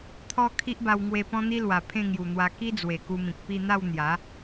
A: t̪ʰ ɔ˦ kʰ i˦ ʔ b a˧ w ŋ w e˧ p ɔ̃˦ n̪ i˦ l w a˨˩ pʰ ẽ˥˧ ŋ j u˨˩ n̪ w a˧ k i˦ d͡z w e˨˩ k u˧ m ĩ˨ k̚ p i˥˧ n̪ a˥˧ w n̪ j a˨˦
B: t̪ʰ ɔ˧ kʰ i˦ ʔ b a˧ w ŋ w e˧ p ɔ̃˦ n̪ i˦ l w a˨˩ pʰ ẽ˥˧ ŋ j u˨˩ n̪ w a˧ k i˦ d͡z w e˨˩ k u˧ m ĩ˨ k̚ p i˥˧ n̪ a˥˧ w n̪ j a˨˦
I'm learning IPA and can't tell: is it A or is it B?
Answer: B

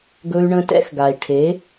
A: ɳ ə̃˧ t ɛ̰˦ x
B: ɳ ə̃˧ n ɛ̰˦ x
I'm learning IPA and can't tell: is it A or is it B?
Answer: A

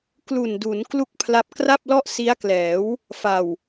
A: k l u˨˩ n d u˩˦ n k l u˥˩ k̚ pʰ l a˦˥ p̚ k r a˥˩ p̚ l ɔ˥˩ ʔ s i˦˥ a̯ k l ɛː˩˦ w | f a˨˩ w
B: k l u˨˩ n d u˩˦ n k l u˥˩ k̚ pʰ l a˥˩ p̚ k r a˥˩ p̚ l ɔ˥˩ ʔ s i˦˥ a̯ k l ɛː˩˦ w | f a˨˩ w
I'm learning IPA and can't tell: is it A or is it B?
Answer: A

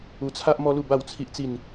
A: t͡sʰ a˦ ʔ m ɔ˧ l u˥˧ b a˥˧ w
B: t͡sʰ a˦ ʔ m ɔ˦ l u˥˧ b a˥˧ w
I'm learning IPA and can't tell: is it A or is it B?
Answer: B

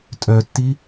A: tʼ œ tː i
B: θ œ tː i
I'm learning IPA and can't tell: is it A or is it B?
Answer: A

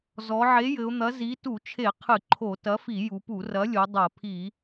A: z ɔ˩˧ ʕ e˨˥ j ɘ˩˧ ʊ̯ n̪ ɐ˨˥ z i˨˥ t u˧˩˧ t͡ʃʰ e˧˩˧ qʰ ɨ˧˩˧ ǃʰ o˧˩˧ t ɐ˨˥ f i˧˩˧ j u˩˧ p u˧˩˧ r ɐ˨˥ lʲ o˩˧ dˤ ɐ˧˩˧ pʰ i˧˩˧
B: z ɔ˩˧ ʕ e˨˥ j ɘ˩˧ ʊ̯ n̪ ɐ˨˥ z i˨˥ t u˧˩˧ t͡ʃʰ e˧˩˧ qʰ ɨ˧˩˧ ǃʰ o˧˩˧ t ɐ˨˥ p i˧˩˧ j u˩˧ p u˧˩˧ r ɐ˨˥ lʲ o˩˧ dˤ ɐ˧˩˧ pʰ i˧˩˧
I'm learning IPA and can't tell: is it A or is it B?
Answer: A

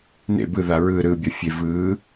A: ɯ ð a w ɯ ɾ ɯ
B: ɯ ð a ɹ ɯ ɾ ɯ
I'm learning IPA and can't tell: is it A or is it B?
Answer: B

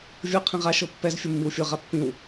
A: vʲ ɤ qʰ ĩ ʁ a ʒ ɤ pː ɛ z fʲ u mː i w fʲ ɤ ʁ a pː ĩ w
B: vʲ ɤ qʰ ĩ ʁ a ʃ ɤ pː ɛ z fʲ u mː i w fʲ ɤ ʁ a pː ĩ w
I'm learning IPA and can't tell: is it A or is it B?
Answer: B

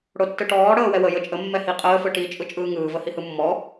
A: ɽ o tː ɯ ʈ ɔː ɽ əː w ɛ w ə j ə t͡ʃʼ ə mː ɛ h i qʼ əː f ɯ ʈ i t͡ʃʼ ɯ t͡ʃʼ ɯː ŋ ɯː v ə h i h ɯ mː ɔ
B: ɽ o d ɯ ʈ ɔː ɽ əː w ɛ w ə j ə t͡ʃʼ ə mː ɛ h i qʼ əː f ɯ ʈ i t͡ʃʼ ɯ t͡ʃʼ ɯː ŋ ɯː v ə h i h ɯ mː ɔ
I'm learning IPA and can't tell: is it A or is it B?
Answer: A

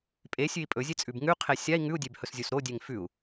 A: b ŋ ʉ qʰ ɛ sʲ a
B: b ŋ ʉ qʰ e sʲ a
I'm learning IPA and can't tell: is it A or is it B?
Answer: B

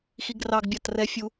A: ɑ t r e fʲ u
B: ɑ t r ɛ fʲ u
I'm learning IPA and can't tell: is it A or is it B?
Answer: B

